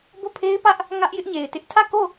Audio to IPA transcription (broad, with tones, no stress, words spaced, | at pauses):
bo˦˨pʰe˦ɪ̯pä˦ʔ | ŋä˦ʔjɪ˦ʔɲe˨ɪ̯tɪ˦ʔ tʰä˦˨ko˦˨